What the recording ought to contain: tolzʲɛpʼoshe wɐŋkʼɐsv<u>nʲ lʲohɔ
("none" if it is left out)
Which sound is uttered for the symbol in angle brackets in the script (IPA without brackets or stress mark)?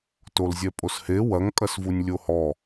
u